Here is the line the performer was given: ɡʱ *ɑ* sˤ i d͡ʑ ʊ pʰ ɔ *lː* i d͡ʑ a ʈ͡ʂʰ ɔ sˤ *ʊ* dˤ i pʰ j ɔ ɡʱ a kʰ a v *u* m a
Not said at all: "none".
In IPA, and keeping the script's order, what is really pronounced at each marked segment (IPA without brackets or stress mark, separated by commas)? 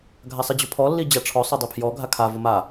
a, lː, ʊ, ʊ